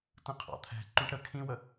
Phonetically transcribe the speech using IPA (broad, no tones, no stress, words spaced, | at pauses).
tə̃qʰɑ̰t̪ʰɛ̤ ǃũʈɾə kʰĩwə